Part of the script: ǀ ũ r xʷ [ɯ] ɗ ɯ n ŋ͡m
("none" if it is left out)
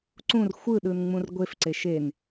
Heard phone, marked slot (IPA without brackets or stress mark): ɯ